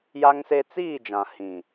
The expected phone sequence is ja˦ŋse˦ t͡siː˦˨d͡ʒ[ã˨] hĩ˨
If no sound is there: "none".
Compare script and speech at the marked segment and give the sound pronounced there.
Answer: ã˨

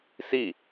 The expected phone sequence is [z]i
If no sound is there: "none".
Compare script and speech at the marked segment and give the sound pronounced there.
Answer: s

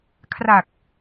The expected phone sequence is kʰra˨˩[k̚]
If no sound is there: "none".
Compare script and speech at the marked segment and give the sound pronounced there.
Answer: k̚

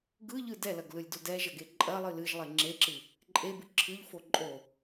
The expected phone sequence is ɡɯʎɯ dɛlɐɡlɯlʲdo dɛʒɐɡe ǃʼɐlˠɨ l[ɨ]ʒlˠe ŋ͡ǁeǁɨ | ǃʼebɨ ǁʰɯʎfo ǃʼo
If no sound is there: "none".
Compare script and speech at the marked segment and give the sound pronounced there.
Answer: ɨ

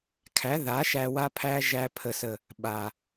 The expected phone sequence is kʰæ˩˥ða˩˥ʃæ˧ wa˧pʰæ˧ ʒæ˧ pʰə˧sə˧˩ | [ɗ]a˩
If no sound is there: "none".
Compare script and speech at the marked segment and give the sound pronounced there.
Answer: ɓ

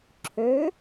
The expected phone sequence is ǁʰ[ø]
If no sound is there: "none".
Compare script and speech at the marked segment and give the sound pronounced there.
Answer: ø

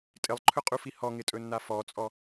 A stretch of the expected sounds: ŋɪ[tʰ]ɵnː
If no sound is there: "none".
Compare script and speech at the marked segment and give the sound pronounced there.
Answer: tʼ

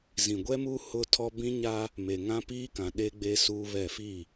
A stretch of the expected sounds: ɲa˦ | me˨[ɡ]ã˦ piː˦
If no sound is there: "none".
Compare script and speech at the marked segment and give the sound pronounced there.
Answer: ŋ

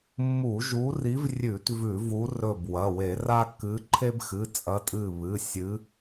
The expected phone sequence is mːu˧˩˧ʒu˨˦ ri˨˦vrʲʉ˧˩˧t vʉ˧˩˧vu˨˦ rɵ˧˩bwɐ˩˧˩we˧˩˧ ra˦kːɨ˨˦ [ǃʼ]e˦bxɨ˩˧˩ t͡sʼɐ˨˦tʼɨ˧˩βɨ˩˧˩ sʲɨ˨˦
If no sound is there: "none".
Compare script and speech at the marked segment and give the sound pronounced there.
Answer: ǃʰ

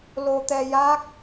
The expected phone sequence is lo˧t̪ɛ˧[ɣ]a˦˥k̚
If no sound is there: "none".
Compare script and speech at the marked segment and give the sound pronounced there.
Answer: j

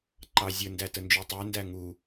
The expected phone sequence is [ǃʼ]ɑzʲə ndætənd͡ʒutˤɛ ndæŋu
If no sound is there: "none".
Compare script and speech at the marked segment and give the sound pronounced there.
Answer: ǃ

